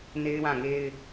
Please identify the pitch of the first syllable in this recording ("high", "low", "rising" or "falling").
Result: high